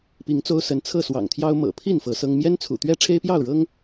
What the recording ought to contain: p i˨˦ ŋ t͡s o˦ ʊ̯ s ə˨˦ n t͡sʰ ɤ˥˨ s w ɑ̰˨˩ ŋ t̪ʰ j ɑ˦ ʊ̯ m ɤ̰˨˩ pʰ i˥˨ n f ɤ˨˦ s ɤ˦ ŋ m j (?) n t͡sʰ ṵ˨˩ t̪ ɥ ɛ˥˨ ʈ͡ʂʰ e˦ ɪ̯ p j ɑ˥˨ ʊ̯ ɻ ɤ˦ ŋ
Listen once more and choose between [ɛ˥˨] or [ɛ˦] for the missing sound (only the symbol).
ɛ˦